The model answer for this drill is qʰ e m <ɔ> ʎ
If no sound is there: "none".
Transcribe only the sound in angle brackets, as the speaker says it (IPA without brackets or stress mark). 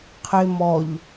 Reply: ɔ